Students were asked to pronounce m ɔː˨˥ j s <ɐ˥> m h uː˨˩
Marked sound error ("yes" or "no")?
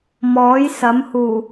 yes